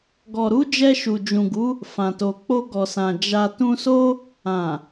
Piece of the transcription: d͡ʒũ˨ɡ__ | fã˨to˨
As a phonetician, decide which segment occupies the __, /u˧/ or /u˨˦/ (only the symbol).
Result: u˨˦